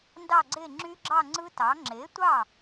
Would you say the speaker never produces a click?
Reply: no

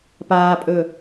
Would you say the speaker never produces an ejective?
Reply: no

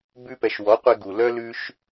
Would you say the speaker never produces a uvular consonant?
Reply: no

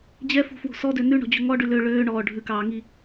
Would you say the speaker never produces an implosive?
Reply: yes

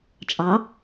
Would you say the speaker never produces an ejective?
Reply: no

